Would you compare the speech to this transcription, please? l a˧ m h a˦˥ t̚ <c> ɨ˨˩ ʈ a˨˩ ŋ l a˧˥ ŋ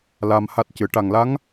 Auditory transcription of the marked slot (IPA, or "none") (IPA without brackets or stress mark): c